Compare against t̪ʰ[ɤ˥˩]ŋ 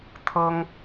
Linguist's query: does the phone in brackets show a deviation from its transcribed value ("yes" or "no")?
yes